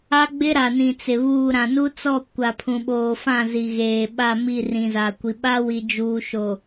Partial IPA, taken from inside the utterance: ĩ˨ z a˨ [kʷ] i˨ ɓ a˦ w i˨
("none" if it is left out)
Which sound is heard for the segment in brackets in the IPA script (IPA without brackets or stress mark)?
kʷ